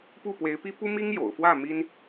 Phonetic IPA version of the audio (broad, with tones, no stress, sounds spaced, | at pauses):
p u˥˩ p w e˧˥ ɪ̯ p i˥ p u˥ m i˥ ŋ j o̰˨˩ ʊ̯ f w ä˥˩ m i˥ n